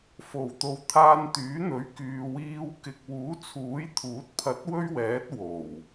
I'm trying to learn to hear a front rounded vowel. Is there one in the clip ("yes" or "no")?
yes